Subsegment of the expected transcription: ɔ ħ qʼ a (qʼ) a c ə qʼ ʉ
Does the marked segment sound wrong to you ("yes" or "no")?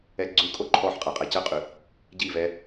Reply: no